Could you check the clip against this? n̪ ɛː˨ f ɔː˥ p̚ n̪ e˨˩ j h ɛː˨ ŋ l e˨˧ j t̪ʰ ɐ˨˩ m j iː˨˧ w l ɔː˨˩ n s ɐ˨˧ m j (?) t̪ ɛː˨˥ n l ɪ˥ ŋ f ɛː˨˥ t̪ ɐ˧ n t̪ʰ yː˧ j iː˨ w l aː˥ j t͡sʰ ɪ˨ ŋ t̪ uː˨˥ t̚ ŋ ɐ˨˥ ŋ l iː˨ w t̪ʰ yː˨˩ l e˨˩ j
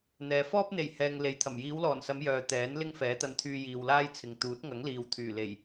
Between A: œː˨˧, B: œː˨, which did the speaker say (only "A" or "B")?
B